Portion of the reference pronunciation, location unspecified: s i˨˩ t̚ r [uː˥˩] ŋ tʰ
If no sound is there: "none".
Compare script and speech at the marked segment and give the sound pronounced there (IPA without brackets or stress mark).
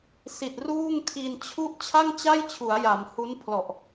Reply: uː˥˩